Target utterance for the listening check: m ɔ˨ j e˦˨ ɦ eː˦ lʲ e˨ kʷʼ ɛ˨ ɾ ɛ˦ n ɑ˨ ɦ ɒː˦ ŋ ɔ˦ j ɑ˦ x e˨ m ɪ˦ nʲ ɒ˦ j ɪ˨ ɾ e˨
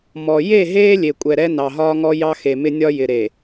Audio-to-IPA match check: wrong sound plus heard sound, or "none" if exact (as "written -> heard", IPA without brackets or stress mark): none